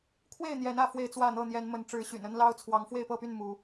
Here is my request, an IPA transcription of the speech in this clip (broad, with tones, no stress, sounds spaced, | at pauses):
kʰ w e˥˨ ɪ̯ n̪ j ɛ˨˦ n ä˥˨ f w e˥˨ ɪ̯ t͡s w ä˥˨ n̪ ɤ˥˨ n̪ j ɛ˨˦ n m ə˨˦ n ʈ͡ʂ ɻ̩˨˦ ɕ y̰˨˩ n ə˦ n l ɑ˦ ʊ̯ t͡sʰ w ɑ˨˦ ŋ f w e˥˨ ɪ̯ p ɤ˥˨ p y˥˨ n m u˨˦